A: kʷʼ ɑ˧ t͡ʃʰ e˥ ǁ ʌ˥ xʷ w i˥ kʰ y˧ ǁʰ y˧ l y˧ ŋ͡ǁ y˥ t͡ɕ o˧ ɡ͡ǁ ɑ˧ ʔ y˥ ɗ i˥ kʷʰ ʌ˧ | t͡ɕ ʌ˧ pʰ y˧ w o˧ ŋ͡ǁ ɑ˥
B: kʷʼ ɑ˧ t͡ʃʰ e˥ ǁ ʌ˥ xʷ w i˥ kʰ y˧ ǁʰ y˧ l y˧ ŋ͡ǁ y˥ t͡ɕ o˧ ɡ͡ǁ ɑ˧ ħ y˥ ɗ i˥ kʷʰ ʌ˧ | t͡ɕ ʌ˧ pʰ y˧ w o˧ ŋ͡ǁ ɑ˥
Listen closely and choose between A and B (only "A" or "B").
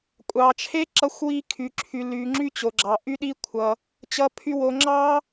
A